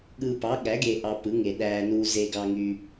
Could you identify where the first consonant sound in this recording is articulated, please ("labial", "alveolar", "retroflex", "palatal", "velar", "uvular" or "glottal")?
velar